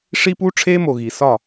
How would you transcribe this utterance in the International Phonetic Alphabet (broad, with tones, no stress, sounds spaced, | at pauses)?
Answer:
ʂ i˦ p uː˦ ʈ͡ʂʰ eː˦ m o˨ ɣ i˨ s ɒ˦˨